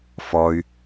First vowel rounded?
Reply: yes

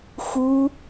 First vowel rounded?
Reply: yes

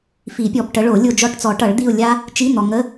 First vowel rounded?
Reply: no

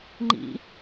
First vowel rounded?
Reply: no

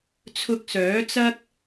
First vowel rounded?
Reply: yes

